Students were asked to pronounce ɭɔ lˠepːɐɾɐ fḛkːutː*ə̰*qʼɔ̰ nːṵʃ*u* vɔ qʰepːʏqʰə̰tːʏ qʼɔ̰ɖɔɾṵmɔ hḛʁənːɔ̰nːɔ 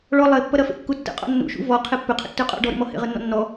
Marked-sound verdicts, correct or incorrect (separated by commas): correct, incorrect